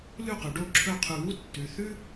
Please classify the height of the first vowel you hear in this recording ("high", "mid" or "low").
high